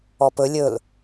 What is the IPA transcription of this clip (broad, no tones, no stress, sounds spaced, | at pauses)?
ɔ p ɵ lʲ ɵ l